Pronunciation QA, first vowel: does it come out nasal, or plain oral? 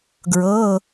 oral